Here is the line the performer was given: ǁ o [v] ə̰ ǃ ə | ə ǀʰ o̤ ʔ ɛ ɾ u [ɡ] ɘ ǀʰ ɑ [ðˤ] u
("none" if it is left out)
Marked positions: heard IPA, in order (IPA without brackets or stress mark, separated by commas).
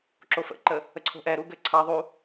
f, ɡ, ðˤ